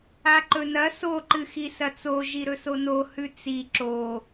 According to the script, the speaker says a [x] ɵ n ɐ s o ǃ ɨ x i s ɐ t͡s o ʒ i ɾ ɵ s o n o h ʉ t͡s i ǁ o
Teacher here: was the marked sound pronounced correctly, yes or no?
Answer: no